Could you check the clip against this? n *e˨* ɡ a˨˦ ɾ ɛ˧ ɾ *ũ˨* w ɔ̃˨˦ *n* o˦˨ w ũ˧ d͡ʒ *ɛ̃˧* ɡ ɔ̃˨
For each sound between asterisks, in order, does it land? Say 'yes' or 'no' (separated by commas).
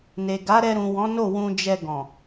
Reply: yes, yes, yes, no